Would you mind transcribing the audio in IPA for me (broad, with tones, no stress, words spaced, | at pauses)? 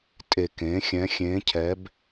tʼe˨˩kẽ˩˧ xʲɛ̃˩˧ xʲẽː˩˧ cʰɛ˨˥b